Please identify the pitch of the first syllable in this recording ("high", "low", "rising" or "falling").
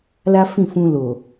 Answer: high